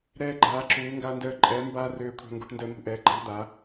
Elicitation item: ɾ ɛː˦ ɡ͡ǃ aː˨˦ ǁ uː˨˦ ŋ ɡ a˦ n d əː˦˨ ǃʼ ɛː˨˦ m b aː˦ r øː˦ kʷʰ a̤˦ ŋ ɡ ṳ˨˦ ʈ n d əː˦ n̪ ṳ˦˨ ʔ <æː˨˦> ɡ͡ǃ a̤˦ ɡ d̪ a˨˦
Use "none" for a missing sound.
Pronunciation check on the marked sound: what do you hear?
ɛː˨˦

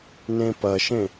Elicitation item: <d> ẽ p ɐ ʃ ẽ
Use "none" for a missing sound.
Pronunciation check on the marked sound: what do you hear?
n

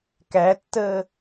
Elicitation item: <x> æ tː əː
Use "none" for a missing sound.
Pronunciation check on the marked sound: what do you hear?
k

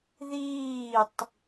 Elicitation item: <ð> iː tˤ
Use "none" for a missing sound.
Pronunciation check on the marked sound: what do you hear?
ð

